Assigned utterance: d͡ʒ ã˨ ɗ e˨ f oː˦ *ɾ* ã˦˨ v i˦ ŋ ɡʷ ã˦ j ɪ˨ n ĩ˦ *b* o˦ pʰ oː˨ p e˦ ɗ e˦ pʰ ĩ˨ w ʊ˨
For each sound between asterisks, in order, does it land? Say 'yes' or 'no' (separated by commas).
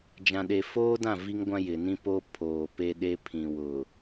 no, no